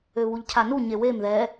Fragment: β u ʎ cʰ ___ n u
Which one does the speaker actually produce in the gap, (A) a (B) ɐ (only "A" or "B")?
A